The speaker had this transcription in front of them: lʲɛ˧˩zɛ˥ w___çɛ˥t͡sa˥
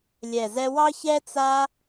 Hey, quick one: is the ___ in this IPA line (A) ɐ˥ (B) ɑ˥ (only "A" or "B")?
B